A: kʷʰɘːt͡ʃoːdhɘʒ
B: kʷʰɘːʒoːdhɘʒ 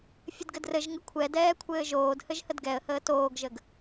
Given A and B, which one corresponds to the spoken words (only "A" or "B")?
B